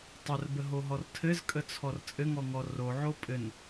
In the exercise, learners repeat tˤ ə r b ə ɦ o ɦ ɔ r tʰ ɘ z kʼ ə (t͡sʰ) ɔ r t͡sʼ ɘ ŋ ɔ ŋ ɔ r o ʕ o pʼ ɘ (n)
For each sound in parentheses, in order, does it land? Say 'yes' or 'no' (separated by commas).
yes, yes